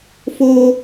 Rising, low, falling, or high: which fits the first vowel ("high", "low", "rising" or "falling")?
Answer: low